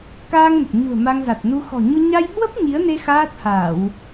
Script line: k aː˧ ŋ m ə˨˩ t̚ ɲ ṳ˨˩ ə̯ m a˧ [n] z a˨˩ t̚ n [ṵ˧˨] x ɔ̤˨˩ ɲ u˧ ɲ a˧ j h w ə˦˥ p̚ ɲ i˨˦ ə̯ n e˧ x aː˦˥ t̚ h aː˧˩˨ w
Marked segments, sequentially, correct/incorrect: incorrect, incorrect

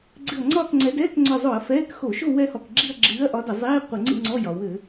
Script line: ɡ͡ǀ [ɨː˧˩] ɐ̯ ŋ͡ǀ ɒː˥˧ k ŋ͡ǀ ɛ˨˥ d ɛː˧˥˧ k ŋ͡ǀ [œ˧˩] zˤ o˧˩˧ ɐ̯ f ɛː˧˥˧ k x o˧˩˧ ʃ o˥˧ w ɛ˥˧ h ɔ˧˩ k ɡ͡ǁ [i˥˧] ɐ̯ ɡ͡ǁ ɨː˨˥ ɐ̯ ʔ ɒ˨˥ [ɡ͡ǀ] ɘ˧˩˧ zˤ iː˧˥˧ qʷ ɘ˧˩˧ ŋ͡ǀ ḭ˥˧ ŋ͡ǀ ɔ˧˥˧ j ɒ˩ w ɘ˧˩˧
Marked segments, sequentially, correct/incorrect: incorrect, correct, correct, incorrect

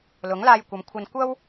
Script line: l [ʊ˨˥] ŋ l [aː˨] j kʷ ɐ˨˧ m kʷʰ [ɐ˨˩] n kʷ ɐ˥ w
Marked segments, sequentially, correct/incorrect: correct, incorrect, incorrect

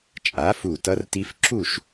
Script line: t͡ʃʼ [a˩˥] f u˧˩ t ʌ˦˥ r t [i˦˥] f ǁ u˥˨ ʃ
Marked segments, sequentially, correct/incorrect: correct, correct

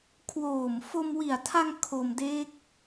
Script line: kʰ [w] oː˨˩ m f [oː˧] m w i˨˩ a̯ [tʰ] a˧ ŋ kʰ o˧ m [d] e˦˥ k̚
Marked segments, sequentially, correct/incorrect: correct, incorrect, correct, correct

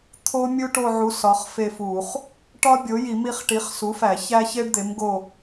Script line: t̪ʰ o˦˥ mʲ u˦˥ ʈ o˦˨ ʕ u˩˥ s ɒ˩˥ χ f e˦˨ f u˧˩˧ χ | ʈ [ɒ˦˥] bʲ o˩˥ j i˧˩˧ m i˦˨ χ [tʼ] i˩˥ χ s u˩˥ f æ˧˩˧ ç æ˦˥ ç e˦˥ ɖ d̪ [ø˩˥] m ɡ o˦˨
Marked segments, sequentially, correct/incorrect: correct, incorrect, incorrect

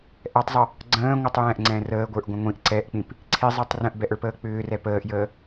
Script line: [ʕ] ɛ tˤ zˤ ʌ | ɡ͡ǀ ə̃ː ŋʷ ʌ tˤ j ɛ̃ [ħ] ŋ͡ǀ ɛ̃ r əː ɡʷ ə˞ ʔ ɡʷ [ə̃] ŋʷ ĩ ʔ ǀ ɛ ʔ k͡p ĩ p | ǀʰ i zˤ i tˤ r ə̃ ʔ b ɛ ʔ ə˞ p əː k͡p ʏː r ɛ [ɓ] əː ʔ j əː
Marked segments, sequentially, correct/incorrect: incorrect, incorrect, correct, incorrect

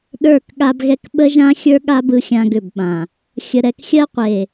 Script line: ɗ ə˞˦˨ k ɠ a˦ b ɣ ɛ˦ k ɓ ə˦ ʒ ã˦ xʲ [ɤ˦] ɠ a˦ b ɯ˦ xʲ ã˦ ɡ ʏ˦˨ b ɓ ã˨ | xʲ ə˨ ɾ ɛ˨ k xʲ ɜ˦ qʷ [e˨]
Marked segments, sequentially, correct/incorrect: incorrect, correct

